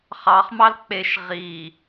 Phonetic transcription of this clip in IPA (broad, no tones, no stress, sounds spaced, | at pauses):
χ ɑ χ m ɑ l k͡p e ʃ ʁ i